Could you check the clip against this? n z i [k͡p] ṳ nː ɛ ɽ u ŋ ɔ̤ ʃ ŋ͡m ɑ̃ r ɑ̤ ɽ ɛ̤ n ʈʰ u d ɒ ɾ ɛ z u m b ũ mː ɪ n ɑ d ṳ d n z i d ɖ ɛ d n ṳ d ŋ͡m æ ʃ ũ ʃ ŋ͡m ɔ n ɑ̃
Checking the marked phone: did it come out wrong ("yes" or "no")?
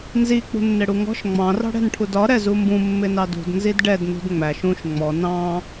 no